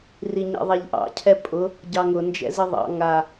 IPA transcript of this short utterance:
r i ɲ ɛ̰ ðˤ æ ʎ ʔ ɑ̰ cʰ ɛ pʼ ʊ | ɟ ɑ ŋ ʊ n d͡ʒ ɛ̰ z i ðˤ ɑ̰ ŋ a

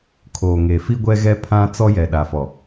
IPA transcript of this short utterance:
kʰ oː˨ ŋ e˨ f i˦ ɡʷ ɛ˦ ɣ ɛ˦ pʰ ã˦ t͡s ɔ˦ j ɛ˨ ɗ a˨ f ɔ˨

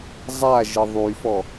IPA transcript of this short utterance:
zˤ a ʒ ə ðˤ y f ɔ

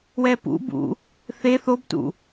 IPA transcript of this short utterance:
w ɛ p ṵ b ṵ | θ e θ o b t ṵ

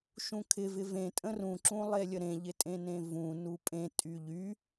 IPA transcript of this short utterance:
ʃ ũ kʰ ɪ v ɪ v ẽ tʼ ə̃ r ũ ǁ ũ lˠ e lʲ ə ɾ ẽ ʎ ɪ tʼ ẽ n ẽ v ũ n u pʼ ẽ tʼ y ʎ y

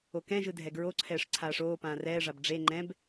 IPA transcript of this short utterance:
o k ɛ̃ ʒ ɯ dʱ ɛ ɡ ɹ o ǀʰ ɛː ʂ ǀʰ aː ʂ oː p ãː r ɛː ʐ a b ɖ͡ʐ e ŋ͡ǃ ɛ̃ b

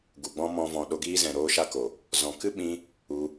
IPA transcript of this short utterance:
ɡ u˨ ɡ͡b ɔ̃˦ m ɔ̃˧ v ɔ̃˨ ɗ o˧ ɡ iː˦ z ɛ̃˨ ɾ oː˦ ʃ a˦ k o˨ | z ɔ̃˨ k ɨ˦ ɓ ĩ˧ | u˧

